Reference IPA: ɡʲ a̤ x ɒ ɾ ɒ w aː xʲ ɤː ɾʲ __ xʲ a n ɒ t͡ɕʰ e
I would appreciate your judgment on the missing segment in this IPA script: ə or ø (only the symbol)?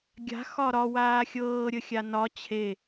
ə